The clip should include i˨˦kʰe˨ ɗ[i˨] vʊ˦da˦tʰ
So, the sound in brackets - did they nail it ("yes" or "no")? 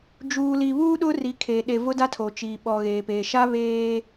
no